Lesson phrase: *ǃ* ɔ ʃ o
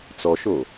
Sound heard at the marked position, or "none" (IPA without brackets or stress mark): t͡s